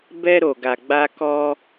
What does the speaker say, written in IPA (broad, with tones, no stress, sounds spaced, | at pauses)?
b ɛ˧ ɾ o˨ ɡ a˨ ɡ͡b a˧ k ɔ˧